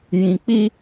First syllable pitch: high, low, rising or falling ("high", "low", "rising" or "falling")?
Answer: low